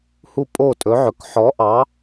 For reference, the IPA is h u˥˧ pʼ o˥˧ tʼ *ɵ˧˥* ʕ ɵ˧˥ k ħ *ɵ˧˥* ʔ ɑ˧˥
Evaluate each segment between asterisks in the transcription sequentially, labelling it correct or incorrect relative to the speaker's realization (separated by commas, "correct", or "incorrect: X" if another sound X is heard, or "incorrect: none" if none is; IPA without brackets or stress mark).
correct, incorrect: ɔ˧˥